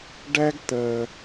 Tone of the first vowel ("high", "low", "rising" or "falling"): high